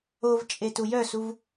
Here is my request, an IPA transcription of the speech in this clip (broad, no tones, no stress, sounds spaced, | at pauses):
o v t͡ʃʼ e t u j œ s u v